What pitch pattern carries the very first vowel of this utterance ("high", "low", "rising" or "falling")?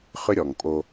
high